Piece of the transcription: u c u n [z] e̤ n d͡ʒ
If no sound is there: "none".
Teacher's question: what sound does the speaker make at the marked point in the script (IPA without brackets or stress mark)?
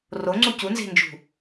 z